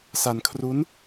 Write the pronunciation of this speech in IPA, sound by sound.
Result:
s a˧ n kʰ r u˦˥ n

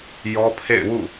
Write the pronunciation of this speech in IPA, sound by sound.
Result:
j ɔ˦ pʰ ḛ˦˨ ɪ̯ w ṵ˦˨

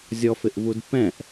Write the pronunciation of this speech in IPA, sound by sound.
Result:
zʲ ɔ f ɪ ʔ v u d p ɛ̃ ʔ

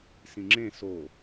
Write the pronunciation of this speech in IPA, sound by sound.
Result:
s ĩ ŋ͡ǁ ẽ s o

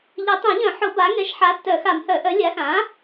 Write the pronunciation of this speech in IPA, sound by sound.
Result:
ʎ ɘ˨˩˦ tˤ ɛ̃˨˩˦ ʎ œ̃˨˩˦ ħ ʊ˨˩˦ b a˩˥ ŋ ɛ˩˥ ʃ ħ a˩˥ tː œ˨˩˦ x a˨˩˦ m h œ˨˩˦ ʔ œ˩˥ lʲ a˩˥ x ã˩˥

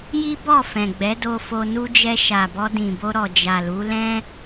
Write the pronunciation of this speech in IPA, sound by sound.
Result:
j i˦ b ɔ˦˨ f ɛ̃˨ ɡ͡b ɛ˨˦ d o˧ f o˧ n u˧ d͡ʒ ɛ˧ ʃ a˨ b ɔ˧ d ĩ˨ b o˧ ɾ ɔ˨ d͡ʒ a˨ l u˨˦ l ɛ̃˦

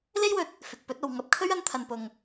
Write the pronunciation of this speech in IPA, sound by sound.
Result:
l e˥ j w ɵ˧ t̚ | f ɪ˨ k̚ p ɵ˨˥ t̚ o˨ w ŋ ɐ˧ p̚ kʰ ɵ˥ ɥ ɐ˧ n t̪ʰ ɐ˨ n p ʊ˨ ŋ

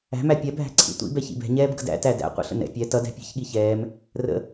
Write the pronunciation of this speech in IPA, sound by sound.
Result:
æ̤ m æ pʲ ɛ bʱ æ̤ ǀʰ ḭ tʷ ḭ b ɛ ç ḭ b ɛ̤ ɲ ɛː b ɡ ə̰ d æ̰ t æ d æ̰ qʷ ə̰ ɬ ə̰ n ɛ̰ pʲ ɛ t ʌ d æ̤ pʲ ɛ̤ ç ɠ i ç ɛː m | r ə̰

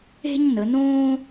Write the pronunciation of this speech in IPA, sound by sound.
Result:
e̤˥ ɲ n ə˩˧ n õː˥

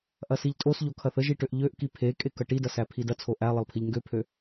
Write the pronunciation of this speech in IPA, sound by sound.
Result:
ʔ ɐ s i ʎ tʼ o s ʎ o kʰ ɐ θ ə ʒ i ʈ ø ʔ ʎ ø ʔ k i pʰ e kʼ e k ɐ ʈ i d ɐ s æ pʰ i d ɐ t͡sʰ o ʔ æ lˠ ə lˠ pʰ i ʎ ŋ ɡ ø pʰ ø

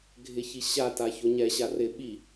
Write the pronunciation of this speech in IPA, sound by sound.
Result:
ɡʱ ɪ ç i ɕ a t a ç o ɲ ɛ ɕ a r ɪ ɓ i

